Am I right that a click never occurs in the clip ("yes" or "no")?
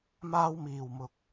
yes